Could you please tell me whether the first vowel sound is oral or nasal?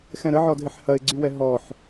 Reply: nasal